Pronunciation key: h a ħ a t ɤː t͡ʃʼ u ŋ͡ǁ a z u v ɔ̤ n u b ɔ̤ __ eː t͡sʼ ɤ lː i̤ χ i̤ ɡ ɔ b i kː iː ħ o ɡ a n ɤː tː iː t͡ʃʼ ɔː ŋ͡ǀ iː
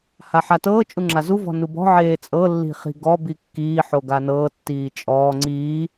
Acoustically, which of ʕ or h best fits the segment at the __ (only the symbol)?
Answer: ʕ